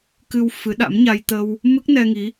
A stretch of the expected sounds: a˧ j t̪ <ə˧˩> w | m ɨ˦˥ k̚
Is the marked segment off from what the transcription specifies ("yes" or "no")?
yes